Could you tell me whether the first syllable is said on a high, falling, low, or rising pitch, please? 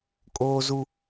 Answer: high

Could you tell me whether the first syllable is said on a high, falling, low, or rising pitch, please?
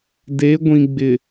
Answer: rising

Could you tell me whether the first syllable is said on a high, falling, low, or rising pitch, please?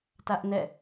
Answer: high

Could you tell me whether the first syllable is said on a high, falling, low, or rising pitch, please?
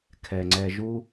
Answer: low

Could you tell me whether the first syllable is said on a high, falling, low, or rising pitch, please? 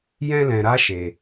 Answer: high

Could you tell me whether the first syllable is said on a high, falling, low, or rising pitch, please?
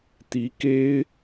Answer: rising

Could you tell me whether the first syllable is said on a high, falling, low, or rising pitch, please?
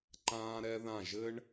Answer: high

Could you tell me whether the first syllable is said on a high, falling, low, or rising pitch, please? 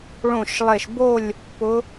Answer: falling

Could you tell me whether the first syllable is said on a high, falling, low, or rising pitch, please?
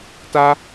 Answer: high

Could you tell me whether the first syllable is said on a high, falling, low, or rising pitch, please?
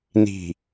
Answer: low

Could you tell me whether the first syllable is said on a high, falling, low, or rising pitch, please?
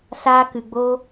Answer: high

